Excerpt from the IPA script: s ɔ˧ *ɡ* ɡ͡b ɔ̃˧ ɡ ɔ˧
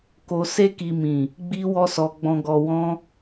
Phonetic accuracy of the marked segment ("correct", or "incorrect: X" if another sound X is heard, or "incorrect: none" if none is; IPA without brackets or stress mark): incorrect: none